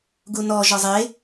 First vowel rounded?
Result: yes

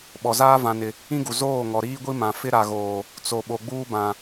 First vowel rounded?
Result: yes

